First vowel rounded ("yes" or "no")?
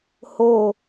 yes